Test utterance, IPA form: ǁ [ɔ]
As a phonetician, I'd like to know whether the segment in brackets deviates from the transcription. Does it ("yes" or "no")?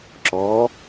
no